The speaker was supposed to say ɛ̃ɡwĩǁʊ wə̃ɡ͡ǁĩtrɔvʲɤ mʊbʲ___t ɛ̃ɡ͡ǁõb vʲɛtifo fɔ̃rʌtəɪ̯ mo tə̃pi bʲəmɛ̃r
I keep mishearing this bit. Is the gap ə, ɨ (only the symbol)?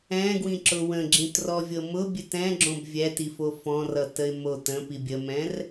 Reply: ɨ